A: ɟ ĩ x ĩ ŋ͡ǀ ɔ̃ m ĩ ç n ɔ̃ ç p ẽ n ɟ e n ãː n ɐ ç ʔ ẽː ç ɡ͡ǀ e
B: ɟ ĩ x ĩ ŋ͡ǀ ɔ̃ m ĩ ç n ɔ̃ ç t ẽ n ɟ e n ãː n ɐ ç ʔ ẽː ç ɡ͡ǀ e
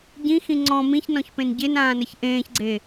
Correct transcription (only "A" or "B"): A